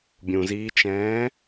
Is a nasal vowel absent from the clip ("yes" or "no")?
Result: no